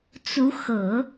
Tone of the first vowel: rising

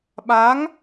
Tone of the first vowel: rising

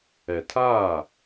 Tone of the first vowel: low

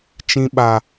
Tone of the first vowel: high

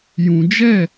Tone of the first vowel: low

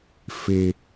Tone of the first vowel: high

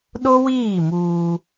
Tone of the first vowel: high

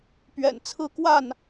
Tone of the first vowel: low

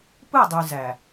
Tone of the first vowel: falling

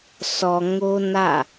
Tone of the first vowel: low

